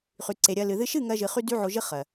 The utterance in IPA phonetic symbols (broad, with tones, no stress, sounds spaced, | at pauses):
χ y˨ ǀ e˨ ɾʲ ɜ˧ l ɨ˨ ð ɨ˦ ʃ ɨ˦˨ ŋ ɜ˧ ʒ ɨ˨ χ y˦ d y˦ ʕ o˧ ʒ ɨ˦ χ ɜ˨